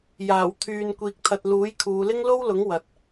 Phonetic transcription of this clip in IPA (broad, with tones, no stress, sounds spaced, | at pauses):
j aː˨˩ w t̪ʰ yː˨ n kʷ iː˨ k̚ t̪ʰ ɐ˨ t̚ l uː˨˥ j kʰ uː˨˧ l ɪ˥ ŋ l o˥ w l ʊ˨˥ ŋ w ɐ˨ t̚